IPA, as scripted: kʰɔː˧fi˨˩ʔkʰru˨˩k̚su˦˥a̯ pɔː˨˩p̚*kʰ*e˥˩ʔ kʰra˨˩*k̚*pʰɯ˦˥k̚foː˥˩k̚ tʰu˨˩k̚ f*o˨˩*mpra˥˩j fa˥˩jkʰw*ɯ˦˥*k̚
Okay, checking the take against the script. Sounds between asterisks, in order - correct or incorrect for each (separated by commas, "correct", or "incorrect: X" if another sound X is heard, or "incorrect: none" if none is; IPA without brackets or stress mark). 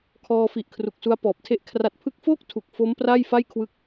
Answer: incorrect: tʰ, incorrect: t̚, incorrect: o˦˥, correct